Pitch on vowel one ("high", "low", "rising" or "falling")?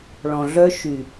low